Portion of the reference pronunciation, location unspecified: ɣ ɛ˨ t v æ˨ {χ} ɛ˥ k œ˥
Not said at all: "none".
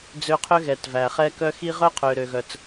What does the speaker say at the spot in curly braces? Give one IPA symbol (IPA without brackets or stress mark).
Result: χ